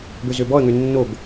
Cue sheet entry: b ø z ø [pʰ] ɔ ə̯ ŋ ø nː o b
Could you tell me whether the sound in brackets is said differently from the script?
yes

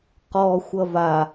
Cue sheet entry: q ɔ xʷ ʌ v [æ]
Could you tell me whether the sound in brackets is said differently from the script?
yes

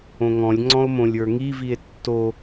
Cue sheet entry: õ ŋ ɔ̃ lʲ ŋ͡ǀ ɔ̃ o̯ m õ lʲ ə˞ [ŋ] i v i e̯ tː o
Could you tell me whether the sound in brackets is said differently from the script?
no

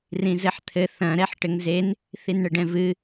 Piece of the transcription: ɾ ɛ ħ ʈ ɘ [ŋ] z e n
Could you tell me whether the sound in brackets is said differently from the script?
no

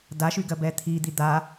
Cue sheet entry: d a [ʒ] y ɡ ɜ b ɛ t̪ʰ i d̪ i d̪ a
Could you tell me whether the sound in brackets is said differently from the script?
yes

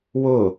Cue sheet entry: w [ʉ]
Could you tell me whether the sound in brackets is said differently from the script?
yes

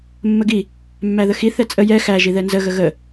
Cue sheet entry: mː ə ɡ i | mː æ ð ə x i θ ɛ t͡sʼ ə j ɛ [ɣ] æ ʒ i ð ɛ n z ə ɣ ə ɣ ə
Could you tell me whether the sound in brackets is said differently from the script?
yes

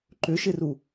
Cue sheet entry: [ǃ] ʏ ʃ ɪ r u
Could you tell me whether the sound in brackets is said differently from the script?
no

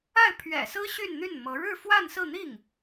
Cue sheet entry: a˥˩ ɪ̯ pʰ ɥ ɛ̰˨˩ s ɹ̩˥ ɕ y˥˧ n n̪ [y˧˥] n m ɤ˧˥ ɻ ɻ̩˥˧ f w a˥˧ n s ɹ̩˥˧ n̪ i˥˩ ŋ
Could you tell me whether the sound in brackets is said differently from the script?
yes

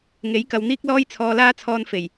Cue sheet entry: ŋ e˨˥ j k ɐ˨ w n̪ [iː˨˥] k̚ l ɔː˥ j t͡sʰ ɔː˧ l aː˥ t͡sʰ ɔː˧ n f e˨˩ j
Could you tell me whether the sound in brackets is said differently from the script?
yes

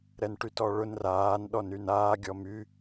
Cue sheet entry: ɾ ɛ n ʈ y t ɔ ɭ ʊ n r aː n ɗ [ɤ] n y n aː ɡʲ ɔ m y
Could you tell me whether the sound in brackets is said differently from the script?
yes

